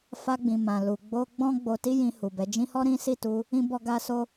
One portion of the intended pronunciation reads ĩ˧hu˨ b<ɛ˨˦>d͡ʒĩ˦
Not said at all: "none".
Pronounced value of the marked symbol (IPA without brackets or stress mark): ɛ˨˦